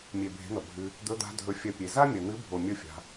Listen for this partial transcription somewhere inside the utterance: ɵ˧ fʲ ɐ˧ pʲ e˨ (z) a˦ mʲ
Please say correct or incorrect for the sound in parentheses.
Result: correct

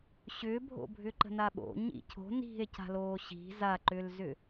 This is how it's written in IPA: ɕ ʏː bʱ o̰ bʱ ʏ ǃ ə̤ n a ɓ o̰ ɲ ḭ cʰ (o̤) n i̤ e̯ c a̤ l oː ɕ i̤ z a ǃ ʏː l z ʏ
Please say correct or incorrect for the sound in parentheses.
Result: correct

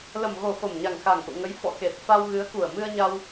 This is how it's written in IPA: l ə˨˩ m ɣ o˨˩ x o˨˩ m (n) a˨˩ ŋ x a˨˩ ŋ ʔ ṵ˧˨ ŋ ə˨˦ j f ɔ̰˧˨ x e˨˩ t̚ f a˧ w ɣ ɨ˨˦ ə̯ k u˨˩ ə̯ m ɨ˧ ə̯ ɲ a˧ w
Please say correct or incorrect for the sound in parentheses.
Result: incorrect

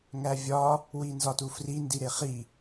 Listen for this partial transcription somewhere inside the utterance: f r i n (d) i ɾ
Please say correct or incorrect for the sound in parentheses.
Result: correct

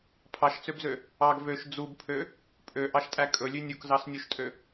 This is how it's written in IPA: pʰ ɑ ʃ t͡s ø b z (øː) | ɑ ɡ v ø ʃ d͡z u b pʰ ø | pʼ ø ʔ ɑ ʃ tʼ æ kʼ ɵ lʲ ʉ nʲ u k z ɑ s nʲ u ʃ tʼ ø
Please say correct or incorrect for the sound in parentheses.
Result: incorrect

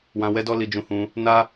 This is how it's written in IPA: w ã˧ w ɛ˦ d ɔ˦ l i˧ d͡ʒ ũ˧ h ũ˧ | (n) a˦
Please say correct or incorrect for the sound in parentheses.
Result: correct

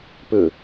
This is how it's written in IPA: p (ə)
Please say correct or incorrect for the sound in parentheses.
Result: incorrect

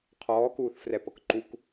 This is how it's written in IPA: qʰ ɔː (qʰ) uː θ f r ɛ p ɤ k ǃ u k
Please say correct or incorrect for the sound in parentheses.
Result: incorrect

